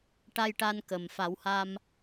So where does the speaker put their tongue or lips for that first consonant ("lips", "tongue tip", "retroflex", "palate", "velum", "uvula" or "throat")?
retroflex